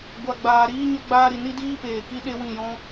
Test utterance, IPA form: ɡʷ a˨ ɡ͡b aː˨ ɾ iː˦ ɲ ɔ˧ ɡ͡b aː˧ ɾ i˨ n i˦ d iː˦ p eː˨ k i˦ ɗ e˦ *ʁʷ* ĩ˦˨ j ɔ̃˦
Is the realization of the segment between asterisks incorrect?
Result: yes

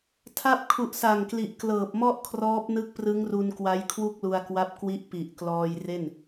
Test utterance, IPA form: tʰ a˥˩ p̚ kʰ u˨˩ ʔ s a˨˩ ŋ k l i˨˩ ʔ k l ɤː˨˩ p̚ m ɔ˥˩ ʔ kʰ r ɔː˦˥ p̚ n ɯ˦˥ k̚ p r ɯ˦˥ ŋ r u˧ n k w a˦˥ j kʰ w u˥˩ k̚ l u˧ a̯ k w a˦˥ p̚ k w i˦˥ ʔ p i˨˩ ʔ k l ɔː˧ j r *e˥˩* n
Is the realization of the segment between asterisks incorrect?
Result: no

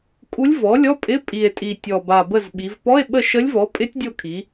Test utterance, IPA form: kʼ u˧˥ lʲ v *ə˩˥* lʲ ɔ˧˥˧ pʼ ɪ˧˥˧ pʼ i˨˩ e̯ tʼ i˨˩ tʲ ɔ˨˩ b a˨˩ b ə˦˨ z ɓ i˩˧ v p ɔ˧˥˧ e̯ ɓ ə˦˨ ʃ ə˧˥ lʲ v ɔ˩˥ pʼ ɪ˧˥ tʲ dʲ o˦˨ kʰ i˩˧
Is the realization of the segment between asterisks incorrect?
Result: yes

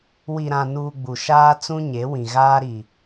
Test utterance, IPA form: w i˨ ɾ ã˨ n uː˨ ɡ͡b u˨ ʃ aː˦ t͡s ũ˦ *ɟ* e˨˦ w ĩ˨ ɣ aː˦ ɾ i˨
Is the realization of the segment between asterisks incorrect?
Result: yes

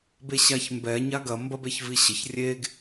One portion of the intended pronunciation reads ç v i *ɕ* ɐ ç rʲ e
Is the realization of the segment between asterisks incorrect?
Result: no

